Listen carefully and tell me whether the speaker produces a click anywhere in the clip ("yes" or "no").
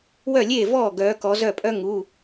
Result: no